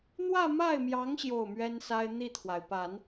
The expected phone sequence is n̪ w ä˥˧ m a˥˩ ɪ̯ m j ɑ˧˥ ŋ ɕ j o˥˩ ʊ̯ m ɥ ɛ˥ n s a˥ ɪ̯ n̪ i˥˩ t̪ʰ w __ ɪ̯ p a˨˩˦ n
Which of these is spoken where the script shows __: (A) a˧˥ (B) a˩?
B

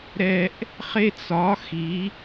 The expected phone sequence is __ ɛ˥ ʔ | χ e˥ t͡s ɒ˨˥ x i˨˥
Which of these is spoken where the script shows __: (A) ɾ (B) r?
A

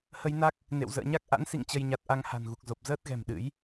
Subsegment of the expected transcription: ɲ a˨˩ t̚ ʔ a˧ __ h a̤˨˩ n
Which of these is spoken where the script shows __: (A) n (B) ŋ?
B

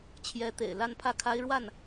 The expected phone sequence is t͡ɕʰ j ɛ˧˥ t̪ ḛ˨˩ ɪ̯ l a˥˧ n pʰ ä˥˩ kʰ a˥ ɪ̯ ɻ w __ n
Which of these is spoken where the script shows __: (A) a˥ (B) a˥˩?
B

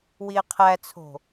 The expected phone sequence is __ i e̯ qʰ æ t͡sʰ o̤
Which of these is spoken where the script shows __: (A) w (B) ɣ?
A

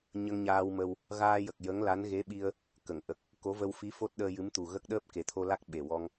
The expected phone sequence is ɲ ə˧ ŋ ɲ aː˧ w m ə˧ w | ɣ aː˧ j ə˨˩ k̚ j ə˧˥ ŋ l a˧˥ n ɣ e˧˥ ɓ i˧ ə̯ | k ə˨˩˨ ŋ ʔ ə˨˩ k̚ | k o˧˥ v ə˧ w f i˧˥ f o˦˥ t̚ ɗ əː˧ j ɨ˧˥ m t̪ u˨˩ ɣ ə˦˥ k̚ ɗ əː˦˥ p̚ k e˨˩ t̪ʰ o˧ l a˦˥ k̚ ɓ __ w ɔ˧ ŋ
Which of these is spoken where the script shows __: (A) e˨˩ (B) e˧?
A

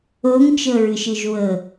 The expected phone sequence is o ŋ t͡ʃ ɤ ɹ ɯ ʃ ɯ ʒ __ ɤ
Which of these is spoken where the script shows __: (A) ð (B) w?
B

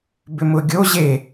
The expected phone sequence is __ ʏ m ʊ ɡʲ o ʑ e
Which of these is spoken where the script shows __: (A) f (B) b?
B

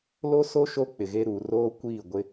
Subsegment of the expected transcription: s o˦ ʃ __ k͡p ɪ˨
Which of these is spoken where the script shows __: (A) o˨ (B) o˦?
B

